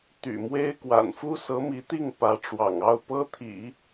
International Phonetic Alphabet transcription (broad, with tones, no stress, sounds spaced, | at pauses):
t̪ y̰˨˩ m w e˥ ɪ̯ k w a̰˨˩ n f u˥ s ɤ˧˥ m i˧˥ t̪ i˥˩ ŋ p ä˧˥ ʈ͡ʂ w ɑ̰˨˩ ŋ ɑ˥˩ ʊ̯ p ɤ˥ t̪ʰ ḭ˨˩˦